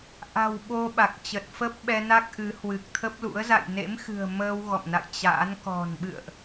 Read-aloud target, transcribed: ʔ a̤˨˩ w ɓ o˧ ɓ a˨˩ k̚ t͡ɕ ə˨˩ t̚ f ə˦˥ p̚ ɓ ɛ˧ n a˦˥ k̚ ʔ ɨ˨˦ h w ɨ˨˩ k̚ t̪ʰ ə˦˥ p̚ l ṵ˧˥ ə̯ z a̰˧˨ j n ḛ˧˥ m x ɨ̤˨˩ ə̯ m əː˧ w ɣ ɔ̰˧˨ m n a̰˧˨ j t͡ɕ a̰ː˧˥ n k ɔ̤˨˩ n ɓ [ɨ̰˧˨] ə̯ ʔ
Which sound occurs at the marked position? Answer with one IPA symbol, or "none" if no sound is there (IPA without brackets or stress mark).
ɨ̰˧˨